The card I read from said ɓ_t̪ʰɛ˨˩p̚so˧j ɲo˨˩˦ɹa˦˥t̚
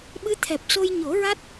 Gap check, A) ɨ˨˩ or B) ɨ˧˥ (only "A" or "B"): B